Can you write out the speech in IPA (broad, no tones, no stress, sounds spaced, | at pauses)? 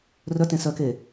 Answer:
r œ t ẽ s œ k e